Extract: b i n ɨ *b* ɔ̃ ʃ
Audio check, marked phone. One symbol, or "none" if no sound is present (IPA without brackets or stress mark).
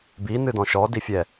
d